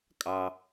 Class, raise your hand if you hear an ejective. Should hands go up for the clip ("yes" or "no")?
yes